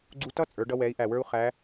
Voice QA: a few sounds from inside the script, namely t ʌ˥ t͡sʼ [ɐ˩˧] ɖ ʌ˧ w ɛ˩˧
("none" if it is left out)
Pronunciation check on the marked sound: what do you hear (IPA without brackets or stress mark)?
ə˞˩˧